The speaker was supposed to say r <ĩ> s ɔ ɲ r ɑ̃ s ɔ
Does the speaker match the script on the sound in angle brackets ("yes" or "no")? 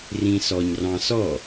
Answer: yes